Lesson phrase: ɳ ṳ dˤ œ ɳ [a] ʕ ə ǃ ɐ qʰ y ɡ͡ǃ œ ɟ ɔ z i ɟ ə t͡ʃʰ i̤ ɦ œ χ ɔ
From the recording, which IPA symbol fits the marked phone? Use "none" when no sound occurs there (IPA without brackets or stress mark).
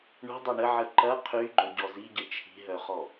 ə